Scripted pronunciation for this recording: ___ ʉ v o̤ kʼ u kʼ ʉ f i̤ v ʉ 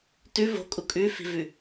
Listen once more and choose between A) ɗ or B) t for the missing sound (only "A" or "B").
B